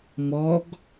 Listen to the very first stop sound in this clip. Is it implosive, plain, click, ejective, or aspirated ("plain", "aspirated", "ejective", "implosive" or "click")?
plain